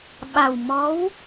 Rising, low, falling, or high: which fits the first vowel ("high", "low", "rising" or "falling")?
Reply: low